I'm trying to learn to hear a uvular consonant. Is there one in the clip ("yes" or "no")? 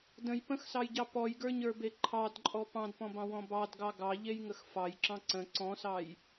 no